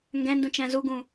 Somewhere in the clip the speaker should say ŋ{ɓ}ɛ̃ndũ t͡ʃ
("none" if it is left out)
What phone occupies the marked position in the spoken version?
ɡ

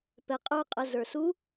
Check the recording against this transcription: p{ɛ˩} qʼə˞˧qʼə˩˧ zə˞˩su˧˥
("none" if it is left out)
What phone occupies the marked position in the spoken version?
ɛ˩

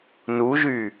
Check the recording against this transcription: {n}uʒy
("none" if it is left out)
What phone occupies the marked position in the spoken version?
n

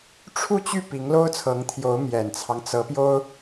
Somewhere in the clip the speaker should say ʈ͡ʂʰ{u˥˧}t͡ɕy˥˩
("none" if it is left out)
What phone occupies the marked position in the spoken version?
u˥˧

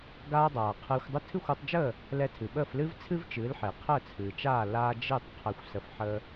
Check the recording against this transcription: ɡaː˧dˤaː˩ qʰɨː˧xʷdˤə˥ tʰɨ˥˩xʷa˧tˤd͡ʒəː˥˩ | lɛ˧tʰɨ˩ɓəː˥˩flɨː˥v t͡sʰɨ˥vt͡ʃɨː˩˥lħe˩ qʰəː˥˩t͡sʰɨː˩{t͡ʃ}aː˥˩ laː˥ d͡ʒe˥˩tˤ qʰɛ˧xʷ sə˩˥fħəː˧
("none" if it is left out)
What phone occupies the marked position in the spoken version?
t͡ʃ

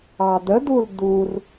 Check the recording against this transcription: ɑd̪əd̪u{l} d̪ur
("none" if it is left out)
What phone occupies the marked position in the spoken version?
l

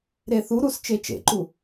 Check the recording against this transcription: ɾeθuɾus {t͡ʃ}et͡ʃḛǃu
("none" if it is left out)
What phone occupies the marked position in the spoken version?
t͡ʃ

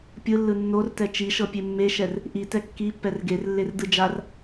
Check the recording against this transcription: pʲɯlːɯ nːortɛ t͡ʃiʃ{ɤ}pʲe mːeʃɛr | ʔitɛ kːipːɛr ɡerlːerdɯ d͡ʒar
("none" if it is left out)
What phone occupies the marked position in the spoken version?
ɤ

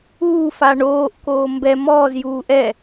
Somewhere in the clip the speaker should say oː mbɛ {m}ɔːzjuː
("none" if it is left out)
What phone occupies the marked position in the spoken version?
m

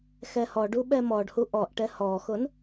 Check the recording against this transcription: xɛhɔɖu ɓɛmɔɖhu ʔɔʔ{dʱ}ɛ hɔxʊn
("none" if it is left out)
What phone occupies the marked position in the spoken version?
ʈ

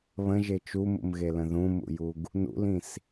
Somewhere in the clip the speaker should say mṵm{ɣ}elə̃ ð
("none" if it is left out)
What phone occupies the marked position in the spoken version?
ɣ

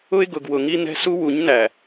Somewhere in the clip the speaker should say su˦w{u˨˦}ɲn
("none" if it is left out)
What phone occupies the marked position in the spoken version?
u˨˦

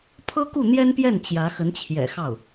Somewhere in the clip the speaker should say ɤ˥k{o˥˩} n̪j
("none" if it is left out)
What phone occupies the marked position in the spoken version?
u˥˩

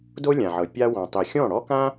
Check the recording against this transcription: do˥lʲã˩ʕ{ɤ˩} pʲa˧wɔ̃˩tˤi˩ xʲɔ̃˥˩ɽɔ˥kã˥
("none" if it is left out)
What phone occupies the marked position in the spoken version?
ɤ˩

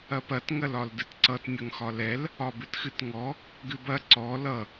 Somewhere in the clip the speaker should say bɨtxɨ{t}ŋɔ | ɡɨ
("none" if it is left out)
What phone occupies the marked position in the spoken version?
t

